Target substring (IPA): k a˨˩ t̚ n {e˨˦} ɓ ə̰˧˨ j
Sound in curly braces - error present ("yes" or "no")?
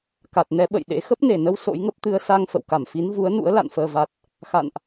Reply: yes